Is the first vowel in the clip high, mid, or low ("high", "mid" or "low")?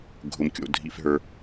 high